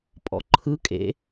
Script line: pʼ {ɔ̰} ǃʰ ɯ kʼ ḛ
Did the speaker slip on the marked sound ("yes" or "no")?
no